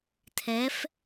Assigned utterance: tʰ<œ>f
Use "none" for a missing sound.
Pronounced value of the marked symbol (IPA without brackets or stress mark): ɛ